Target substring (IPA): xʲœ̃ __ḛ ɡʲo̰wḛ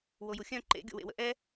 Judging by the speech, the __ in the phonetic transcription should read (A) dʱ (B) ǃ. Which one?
B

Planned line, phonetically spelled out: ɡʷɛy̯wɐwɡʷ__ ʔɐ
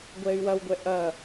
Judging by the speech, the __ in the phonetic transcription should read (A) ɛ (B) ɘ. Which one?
A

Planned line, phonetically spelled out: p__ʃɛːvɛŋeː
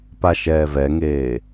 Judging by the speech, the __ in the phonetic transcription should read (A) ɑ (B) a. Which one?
B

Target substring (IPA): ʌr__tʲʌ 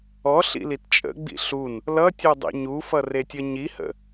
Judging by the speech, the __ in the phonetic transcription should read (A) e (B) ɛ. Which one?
A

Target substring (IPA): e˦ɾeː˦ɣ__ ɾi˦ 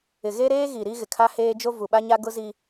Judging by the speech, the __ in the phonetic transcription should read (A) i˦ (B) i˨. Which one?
B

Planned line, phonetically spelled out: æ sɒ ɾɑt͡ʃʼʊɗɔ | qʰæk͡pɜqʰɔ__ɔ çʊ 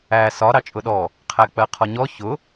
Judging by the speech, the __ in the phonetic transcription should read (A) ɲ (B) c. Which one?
A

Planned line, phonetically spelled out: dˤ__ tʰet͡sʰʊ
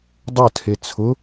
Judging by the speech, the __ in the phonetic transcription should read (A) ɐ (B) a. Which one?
A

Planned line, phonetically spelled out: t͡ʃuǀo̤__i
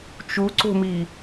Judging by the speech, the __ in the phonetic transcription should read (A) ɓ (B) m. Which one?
B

